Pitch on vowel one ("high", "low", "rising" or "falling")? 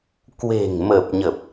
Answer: low